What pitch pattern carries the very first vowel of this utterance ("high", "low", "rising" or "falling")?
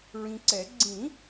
low